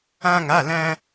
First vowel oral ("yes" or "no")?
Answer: no